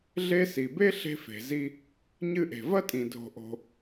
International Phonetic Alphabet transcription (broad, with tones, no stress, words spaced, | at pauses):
ɮe˦si˩be˥ ɬe̤˦fe̤˩zi˦ | ɲɨ˦ʔe̤˩vɐ˥tʼĩ˩ dʱo̤˨ʔo̤˨